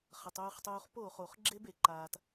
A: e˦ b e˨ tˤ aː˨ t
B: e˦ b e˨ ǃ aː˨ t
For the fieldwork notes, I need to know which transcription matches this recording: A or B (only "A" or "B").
B